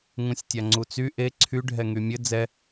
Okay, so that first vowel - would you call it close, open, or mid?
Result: close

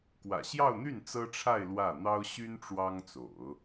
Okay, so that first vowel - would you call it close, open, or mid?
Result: open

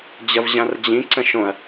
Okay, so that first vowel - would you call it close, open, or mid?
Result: open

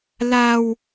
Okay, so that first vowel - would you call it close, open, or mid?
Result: open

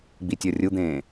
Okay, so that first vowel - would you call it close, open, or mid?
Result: close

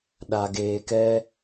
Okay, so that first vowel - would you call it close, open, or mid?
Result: open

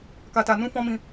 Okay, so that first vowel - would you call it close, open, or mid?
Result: open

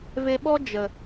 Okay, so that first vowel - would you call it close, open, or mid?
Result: mid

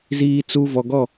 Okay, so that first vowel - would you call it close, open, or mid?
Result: close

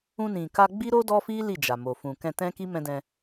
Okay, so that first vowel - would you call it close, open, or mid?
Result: close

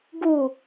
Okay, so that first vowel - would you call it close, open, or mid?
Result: close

